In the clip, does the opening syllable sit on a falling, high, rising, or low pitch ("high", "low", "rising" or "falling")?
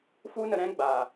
high